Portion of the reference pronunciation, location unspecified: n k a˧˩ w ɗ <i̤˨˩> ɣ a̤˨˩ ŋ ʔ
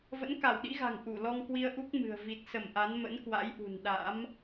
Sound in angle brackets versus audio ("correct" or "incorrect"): incorrect